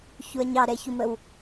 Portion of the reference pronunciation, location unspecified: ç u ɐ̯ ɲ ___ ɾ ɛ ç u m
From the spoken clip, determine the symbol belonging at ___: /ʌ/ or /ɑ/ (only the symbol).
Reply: ɑ